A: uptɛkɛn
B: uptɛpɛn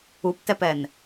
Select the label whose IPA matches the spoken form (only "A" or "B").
B